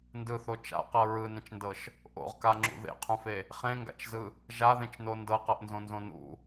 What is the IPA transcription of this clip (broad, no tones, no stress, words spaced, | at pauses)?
ndɯθo t͡ʃa̰qɤ ɹɯnẽt͡ʃndɤʃ | ʔo̰ʁkaŋ͡ǁṵ ðḛqʰũfe | χẽŋɡa̰t͡ʃzɯ | ʒaðẽt͡ʃno ndɤqɤʔnzõnzõ nṵ